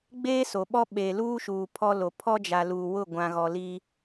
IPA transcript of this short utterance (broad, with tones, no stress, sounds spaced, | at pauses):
ɡ͡b eː˦ s o˨ ɓ ɔ˦ ɓ eː˨ l uː˦ ʃ uː˨ pʰ ɔ˦ l o˨ pʰ ɔ˦ d͡ʒ a˨ l uː˨ w ʊ˦˨ ɡʷ ã˨ ɣ ɔ˨ l i˦